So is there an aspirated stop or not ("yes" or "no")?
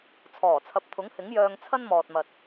yes